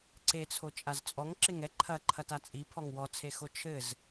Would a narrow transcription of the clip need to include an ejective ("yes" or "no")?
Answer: yes